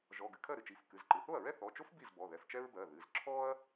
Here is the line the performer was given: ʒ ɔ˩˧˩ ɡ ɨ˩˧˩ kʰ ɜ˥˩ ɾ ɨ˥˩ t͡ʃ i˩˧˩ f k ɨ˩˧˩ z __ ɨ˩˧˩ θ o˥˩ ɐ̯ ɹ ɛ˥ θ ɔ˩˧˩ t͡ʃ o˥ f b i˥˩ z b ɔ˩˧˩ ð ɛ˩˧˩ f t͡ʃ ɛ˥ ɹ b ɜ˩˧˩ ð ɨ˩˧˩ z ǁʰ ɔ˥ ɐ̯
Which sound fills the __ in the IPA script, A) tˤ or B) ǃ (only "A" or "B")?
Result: B